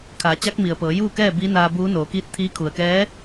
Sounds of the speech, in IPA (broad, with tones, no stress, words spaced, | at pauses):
kʰaː˩˧t͡ɕa˧˥k̚mi˩ə̯pɤː˩˧ juː˥˨kɛː˥˨ biː˧˥naː˧buː˧˥ noː˩˧kiː˧˥t̚t̪ʰiː˧˥ kʰu˩ə̯kɛː˧˥